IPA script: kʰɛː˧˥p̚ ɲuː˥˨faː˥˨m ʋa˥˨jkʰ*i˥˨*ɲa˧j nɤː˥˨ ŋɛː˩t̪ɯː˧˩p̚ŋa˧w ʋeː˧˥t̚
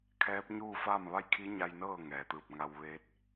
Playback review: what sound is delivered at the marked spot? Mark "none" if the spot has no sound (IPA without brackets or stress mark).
i˧˥